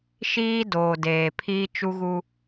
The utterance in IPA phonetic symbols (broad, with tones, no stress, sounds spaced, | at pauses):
ʃ iː˦ d oː˨ d eː˨ pʰ iː˦ t͡ʃ u˦ ɣ u˦